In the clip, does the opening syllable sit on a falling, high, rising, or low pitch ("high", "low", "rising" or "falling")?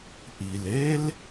low